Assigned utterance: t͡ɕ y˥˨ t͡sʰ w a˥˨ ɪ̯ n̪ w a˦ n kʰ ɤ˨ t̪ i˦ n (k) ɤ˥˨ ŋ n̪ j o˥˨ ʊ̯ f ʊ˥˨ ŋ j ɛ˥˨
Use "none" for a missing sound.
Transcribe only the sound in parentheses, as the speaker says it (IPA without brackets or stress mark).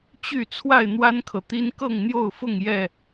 k